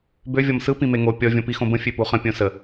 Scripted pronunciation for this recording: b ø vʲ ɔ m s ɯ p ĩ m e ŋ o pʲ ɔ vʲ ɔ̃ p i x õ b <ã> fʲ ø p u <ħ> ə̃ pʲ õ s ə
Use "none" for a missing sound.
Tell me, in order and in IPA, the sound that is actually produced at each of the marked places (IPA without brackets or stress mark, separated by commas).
ə̃, χ